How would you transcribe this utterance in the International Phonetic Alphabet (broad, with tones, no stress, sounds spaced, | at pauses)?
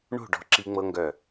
ɳ o̤˦˨ ɖ ɔ̤˦˥ ǁ i˦˥ ŋ͡m ɤ˦˥ ŋ ɡ œ˦˨